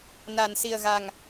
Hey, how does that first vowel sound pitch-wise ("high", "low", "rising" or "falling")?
low